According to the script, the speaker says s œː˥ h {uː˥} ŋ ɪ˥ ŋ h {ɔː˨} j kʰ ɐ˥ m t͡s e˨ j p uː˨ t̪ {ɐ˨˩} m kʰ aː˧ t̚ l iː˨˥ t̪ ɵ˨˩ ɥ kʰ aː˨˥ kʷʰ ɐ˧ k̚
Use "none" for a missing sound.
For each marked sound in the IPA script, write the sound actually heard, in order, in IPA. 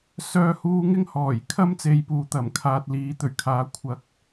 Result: uː˥, ɔː˨˩, ɐ˨˩

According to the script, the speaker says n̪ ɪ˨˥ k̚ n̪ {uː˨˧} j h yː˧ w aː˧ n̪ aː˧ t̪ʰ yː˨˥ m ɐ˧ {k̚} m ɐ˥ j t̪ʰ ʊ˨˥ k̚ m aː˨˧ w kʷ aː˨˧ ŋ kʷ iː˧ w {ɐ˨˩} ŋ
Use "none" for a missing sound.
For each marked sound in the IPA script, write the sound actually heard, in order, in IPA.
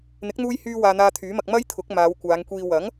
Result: uː˧, k̚, ɐ˨˥

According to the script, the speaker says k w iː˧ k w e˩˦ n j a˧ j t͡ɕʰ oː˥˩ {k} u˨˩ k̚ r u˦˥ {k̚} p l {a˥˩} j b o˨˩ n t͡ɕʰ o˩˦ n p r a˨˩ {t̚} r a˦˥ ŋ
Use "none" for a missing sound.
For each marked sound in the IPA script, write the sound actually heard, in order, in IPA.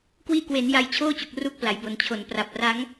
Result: t͡ɕ, k̚, a˩˦, p̚

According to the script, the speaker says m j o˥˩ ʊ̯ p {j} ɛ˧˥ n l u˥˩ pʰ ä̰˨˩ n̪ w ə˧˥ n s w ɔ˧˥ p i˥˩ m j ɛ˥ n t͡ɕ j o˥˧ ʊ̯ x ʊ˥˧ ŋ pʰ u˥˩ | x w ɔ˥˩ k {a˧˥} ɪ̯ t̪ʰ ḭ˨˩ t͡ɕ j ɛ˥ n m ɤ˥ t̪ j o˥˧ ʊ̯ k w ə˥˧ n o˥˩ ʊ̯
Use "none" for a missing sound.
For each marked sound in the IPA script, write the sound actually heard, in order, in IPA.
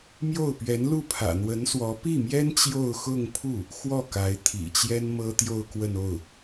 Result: ɥ, a˧˥

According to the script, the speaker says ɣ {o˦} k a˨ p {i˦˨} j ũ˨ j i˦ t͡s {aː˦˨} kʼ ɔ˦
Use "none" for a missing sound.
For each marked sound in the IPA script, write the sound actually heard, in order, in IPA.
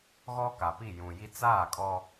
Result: ɔ˦, i˦˨, aː˦˨

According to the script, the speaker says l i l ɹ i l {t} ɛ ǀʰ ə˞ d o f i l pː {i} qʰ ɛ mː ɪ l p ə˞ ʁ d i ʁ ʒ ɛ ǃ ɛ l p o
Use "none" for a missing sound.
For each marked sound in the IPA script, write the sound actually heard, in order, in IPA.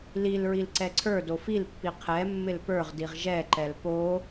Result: ǀ, i

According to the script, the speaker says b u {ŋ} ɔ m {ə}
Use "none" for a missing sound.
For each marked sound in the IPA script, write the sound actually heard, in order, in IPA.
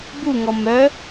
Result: ŋ, œ

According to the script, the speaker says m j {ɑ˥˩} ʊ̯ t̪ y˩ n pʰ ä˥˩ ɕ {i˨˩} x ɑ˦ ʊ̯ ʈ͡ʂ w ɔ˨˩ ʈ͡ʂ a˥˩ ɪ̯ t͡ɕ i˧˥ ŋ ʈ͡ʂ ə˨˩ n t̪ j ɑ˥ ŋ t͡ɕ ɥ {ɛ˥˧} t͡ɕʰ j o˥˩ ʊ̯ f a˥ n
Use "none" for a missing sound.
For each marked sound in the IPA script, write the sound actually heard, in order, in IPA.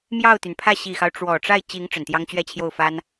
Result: ɑ˥˩, i˨˩, ɛ˥˧

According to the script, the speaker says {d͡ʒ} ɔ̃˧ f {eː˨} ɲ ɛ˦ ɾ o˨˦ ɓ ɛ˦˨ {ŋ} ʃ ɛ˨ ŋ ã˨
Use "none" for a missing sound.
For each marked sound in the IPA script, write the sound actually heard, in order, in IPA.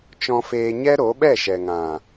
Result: t͡ʃ, eː˧, none

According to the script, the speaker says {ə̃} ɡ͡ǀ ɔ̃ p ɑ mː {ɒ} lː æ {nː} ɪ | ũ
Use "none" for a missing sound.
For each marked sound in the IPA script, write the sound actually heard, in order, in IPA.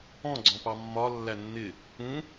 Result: ɔ̃, ɒ, nː

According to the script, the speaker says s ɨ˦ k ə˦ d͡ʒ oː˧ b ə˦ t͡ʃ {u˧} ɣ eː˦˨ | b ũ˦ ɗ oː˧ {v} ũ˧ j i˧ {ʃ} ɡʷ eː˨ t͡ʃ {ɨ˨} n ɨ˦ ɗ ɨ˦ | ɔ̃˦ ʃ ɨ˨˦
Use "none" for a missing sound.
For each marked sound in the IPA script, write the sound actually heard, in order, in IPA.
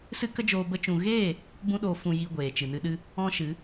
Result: ũ˧, f, none, ɨ˨

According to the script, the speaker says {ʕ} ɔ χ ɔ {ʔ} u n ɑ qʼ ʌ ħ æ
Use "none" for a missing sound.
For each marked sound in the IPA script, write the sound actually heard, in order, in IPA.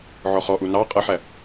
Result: ʕ, ʔ

